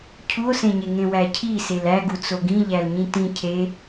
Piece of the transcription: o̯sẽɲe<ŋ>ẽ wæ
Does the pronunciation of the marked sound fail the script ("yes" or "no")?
no